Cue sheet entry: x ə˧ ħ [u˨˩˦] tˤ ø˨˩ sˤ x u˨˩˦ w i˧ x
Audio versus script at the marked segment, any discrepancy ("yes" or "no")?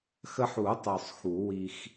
no